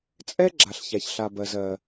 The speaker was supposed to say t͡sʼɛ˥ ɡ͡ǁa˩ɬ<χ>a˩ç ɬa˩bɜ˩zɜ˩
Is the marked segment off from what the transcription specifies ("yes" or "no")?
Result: yes